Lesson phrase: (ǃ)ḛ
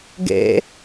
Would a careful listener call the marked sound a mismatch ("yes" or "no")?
yes